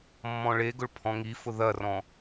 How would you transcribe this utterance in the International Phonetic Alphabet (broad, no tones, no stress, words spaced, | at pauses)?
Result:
mːɔ̃ɭeɡʊɭ pʰɔ̃ŋifʊ ðɐrɔ̃